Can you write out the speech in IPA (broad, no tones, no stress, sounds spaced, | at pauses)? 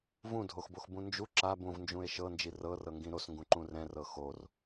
v ũ dʱ o x b o x b ũ n d͡ʒ u ǁ a b ũ v n d͡ʒ ũ e̯ ʃ ɤ n d͡ʒ i r ɤ r ɤ ŋ ɡ ĩ ɾ o s ŋ ɡ ũ ǃ ũ r ɛ̃ r ɤ x o r